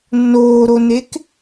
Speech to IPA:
nː oː ɾ o n e k

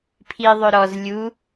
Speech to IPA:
pʰ i ðˤ ɵ ɾ ɔ z lʲ u

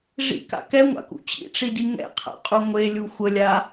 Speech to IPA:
ʐ ḭ k a̰ k ɛ ŋʷ a̰ k ṵ t͡ɕ ḭ ʈ͡ʂ i d i ŋ ɛ̰ qʰ a̰ qʼ u ŋʷ e lʲ u xʷ ə lʲ a

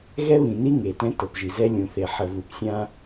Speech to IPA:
ɣ ɛ˦ β ĩ˨ n i˦ ŋ e˨ t ɛ̃˦ t ɤ˨ p ʒ i˨ z ɛ˦ lʲ ũ˨ θ e˨ ħ ə˨ v u˨ p sʲ ã˦

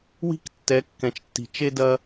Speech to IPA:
w i̤˦ k tː ɛ˨˦ kː ɛ̃˨ t͡ʃ tː i̤˨ t͡ʃ e˦ d ɐ˦

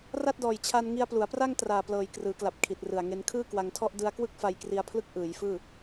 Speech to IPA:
r a˥˩ t̚ d ɔː˨˩ j t͡ɕʰ a˧ n ŋ i˧ a̯ p l u˩˦ a̯ p r a˥˩ ŋ t r aː˨˩ p l ɤː˨˩ j k r ɯː˩˦ k l a˨˩ p̚ kʰ i˨˩ t̚ r ɯ˨˩ a̯ ŋ e˧ n kʰ ɯː˥˩ k w a˧ ŋ tʰ ɔ˥˩ ʔ d ɯ˧ a̯ k w ɯ˥˩ k̚ f a˧ j k r i˧ a̯ pʰ l ɯ˦˥ k̚ ʔ ɯː˩˦ j f ɯː˥˩

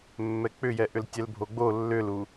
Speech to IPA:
mː ɛ k͡p ʏ j ɛ ʔ ʏ l tʲ ɛ l bʱ o ɡ͡b o lː ʏ l u

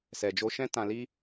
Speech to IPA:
s ɛ˨ d͡ʒ o˧ ʃ ɛ̃˦ t ã˧ l i˦

